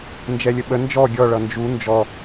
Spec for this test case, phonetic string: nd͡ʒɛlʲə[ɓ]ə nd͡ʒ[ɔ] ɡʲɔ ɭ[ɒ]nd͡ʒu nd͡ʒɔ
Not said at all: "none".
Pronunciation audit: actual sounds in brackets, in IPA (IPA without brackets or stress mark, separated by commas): ɓ, ɔ, ʌ